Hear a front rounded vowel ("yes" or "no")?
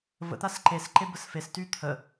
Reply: yes